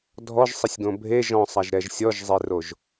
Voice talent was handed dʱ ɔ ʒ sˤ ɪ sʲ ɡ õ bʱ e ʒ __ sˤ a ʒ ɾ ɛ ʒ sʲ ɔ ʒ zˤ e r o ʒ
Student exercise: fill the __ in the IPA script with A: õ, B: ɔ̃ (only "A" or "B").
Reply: B